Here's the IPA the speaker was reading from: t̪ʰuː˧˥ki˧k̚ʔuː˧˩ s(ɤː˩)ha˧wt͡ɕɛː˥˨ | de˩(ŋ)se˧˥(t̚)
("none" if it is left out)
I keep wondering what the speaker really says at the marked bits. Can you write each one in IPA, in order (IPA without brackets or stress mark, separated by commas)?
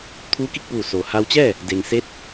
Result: oː˩, ŋ, t̚